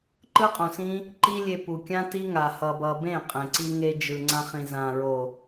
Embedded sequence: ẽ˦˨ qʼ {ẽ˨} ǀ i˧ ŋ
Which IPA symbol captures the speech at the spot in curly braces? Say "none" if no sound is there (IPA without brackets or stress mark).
ẽ˨